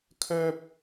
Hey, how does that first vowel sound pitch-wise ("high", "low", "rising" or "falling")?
high